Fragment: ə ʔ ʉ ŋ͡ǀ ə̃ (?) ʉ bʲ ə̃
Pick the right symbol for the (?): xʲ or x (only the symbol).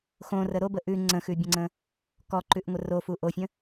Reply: x